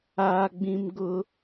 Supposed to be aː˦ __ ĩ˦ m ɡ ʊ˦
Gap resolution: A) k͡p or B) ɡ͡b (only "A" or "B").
B